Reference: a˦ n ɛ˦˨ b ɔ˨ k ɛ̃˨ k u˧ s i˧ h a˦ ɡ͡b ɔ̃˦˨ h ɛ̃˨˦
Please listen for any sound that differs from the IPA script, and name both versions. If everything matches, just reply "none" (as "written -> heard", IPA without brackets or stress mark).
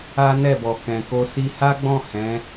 u˧ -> o˧